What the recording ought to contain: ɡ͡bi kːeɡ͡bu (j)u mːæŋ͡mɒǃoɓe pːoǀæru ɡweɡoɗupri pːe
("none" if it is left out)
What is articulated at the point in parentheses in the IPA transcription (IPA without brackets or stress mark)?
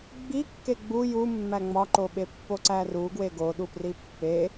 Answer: j